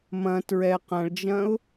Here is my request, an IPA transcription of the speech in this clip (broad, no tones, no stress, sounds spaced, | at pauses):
m ɐ̃ t ɹ ɛ q ɐ̃ ɭ d͡ʒ ɐ̃ ʊ̯